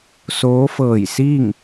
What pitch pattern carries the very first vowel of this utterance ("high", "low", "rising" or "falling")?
rising